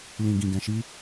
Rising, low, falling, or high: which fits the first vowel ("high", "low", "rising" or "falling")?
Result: low